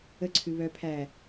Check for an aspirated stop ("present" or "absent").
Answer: present